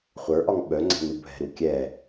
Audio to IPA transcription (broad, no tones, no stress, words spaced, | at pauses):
χʷə˞ʔɒŋ ɓœŋ͡ǀɛ̤nubʱɛ̤ ɾukʲɛ